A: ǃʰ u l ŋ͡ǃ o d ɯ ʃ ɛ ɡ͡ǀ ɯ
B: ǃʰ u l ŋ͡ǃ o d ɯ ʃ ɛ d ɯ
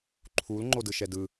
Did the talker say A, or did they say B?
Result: B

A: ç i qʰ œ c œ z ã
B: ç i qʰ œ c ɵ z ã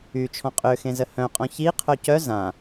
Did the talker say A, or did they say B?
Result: A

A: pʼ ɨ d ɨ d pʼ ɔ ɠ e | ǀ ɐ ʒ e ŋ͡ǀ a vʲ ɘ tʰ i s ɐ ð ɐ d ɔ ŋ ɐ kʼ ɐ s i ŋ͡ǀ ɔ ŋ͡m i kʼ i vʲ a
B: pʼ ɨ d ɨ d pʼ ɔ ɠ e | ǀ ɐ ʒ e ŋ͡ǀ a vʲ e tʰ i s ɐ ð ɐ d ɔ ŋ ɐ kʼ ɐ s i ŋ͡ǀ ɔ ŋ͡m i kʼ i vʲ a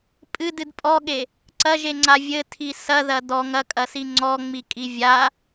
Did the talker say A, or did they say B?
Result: A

